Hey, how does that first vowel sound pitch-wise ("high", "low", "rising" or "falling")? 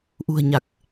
low